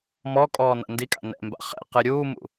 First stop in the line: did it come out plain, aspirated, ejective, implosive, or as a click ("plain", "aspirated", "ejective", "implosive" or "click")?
ejective